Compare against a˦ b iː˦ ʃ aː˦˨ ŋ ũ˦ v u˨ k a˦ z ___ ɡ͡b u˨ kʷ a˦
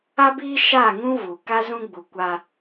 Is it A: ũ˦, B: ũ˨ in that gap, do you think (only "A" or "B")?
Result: A